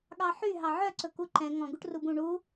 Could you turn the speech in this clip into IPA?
ɠɑħy ɦɑʕœ ǀɵkuǃɛ̃ ŋɔ̃ ɡuʈrubũ ɳu

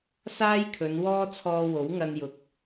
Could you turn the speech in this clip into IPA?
saː˥jkʰɵ˨˧nwɔː˥ t͡sʰɔː˧ wo˨˥wŋɐ˧njʊ˨k̚

